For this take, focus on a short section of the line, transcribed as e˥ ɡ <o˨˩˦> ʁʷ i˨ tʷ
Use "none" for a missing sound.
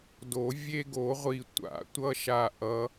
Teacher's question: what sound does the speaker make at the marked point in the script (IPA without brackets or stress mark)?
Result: o˨˩˦